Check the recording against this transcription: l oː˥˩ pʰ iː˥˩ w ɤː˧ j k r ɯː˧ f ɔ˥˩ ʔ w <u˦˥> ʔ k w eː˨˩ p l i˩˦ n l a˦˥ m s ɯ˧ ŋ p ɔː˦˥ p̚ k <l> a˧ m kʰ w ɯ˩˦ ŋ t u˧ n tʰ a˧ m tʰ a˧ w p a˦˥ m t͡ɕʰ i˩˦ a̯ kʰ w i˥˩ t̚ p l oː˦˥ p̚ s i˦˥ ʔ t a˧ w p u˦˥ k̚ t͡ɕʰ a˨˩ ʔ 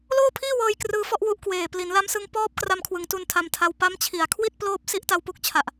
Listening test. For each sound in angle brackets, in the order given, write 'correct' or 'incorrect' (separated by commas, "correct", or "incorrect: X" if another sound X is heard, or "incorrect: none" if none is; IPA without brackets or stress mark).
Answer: correct, incorrect: r